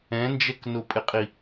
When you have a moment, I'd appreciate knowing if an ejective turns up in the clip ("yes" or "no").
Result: yes